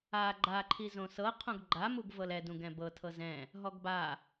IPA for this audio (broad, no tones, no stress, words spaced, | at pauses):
a ɡ͡ǃaǃʰi zõsɤ qʰõɡɡ͡ǃamuɡ vɤlɛdũ ɡɛ̃bɤ tʰɤzɛ̃ | ɦɔɡba